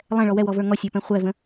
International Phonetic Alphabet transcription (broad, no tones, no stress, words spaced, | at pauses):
lˠɛ̃ɭɔ wɛwɔvə˞ ŋɔsʲə˞pɛ̃ χʷɛvə̃